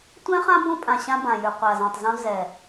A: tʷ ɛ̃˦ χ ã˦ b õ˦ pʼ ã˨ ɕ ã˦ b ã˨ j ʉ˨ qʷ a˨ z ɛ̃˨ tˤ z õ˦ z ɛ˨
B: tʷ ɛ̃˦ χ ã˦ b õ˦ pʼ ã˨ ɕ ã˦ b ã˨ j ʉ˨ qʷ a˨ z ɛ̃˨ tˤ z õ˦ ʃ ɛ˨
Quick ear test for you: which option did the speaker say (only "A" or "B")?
A